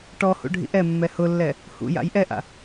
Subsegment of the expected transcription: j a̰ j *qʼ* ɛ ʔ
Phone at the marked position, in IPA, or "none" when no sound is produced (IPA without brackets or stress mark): ʔ